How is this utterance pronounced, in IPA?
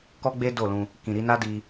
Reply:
k ɔ˦ ɡ͡b e˦ d o˦˨ l ũ˧ | k ĩ˨ ɾ i˧ n a˦ d i˧

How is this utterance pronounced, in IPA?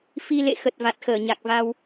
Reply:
f i˧ l ḛ˧˨ x ə˨˩ t̚ v a˨˩ t̚ x əː˧˩ ɲ a˨˩ k̚ v a˧ w

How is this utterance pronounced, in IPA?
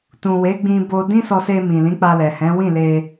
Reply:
t ũ˨ w e˨˦ ɡ͡b ĩ˧ b o˧ d ĩ˦ s ɔ˧ s e˧ m ĩ˨ l ĩ˨˦ k͡p a˧ l ɛ˨ h ɛ̃˨˦ w ĩ˦˨ l e˧

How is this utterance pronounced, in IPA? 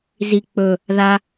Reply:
z i k͡p ɵ | ð a

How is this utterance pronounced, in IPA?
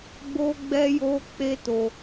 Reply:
ɡ͡b o˦ ɡ͡b ɛ˦ j o˦ k͡p e˦ t o˧

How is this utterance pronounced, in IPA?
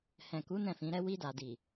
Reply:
h ɛ̃˨ k u˨˦ n ɛ̃˦˨ f ĩ˨˦ ɾ ɛ˦ w i˧ d a˨ d i˨

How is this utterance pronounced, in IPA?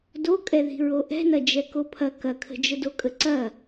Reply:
d o kʼ ɛ ð i̤ ɹ o ʔ ɛ̤ n ɐ d͡ʒ ɛ k o pʰ ɐ k ɐ kʰ ə̤ d͡ʒ ə d o kʼ ə ǀ ɐ

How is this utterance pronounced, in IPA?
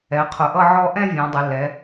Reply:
ɛ˩˧ qʰ ʊ˩˧ ʔ ʌ˥˧ ʕ ɔ˥˧ ʔ ɛ̃˥˧ vʲ ɔ̃˩˧ dˤ ɪ˩˧ l ɛ˩˧

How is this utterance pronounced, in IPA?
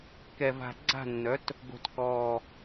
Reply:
k ɛ˨˩ v a̤˨˩ ɡ͡ǀ a̤˥˩ nː œ˩˥ t | ɡ o̤˨˩ t k ɔː˨˩

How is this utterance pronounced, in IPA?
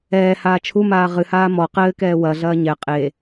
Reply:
ɛː h aː t͡ʃʰ u m aː ʁ ɨ h aː m ɔ q ɘː k ɛː w ɐ ɮ ɐː ɲ ɛ qʼ e

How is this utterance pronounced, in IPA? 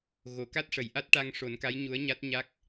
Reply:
ɣ o˨˩˨ k a˦˥ t̚ ʂ ə˨˩˨ j ʔ a˦˥ t̚ ʈ a˧ ŋ ʂ o˨˩˦ n k a˧˥ j ɲ u˧˥ ə̯ ɲ a˦˥ t̚ ɲ a˦˥ k̚

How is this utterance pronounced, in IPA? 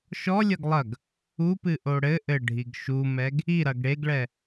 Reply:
ʃ ɔ lʲ ɐ ɡ lˠ ɐ ɡ | u p ɨ ʔ o ɽ ɘ ʔ ɘ ɖʱ i ɡ ʃ u m ɛ ɡ | i ɾ ɐ ɡ ɽ e ɡ ɭ ɛ

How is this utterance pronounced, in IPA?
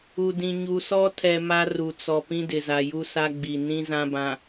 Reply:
u˨ d ĩ˨ ɲ u˨ s ɔ˦ tʰ ɛ˨ m a˦ r u˨ t͡s ɔ˨ p ĩ˦ d ɪ˨ z a˨ j u˦ s a˦ ɡ͡b i˨ n ĩ˦ z ã˦ b ã˨

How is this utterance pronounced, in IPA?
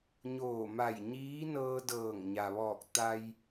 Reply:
ɲ oː˧˩ m a˧˩ j ɲ iː˧˥ n ɤː˧ d ɤː˧˩ ŋ ɲ a˩ ʋ ɔː˧˩ k̚ t̪ a˧ j

